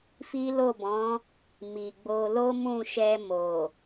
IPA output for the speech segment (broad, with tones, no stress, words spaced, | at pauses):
fi˦lo˦˨bɔ̃˨˦ | mi˨ɡ͡bo˧ lo˦mũ˦˨ʃɛ˧ mo˨